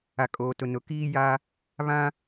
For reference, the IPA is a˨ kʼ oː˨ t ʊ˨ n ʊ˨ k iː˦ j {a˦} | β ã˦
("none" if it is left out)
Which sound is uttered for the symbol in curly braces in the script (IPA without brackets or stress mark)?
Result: a˦